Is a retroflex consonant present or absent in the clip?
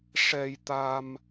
present